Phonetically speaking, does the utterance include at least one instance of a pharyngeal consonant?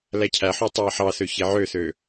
yes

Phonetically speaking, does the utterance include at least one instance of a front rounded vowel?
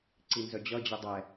yes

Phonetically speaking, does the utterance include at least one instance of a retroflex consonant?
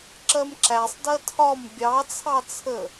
no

